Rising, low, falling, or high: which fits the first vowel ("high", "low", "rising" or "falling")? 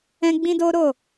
high